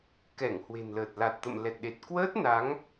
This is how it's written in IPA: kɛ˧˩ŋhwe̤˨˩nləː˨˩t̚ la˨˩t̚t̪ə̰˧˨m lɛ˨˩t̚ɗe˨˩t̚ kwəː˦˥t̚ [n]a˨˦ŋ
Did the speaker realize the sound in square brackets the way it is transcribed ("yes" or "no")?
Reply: yes